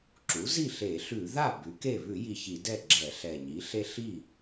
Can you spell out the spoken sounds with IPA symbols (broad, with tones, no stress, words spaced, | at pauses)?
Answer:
ǁu˩˥zi˥˩ ɬe˧˩˧ɬʉ˧˩˧ða˥˩ bʉ˩˥ke˥˩ βʉ˧˩˧ji˨˩ çi˧˩˧dɛ˥˩ɡ͡ǁɛ˧˩˧ ɬɛ˨˩ɲi˩˥ ɬe˦ɬi˥˩